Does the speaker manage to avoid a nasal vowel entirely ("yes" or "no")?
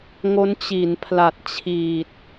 yes